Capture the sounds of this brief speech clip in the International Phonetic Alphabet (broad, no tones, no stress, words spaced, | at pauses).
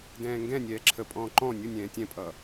dɛ̃ːŋɡɛ̃nʲɛː ǁʰəpʼɔ̃ː ǃɔ̃ nʲʊnʲɛ̃ː tʲɛ̃pʼʌ